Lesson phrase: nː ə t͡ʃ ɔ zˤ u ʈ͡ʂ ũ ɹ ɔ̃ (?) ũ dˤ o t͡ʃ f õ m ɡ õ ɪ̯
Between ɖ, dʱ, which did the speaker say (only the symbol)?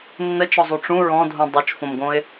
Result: dʱ